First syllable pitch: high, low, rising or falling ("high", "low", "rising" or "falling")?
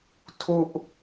falling